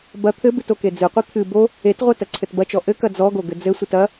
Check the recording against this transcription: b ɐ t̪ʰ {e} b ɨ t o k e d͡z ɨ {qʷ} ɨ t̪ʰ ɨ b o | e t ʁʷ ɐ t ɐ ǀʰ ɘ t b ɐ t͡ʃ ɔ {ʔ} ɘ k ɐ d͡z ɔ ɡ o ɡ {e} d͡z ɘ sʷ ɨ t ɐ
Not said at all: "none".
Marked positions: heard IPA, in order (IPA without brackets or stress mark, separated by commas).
ɘ, qʷ, ʔ, ɘ